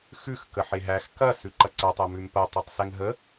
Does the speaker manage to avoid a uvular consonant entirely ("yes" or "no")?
yes